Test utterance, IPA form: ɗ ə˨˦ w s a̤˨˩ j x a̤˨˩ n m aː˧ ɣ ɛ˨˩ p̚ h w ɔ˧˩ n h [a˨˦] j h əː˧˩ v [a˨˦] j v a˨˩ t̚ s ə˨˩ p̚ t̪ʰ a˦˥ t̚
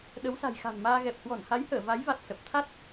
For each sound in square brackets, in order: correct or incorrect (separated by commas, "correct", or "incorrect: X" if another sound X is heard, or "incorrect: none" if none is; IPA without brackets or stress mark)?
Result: correct, correct